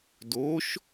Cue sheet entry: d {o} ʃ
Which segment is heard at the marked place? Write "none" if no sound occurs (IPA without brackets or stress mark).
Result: o